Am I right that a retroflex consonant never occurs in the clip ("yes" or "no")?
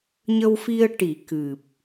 no